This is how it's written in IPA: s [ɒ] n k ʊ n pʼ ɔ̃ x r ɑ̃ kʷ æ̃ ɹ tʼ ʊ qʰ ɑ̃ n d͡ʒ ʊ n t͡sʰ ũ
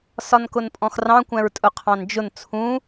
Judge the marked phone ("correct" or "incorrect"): correct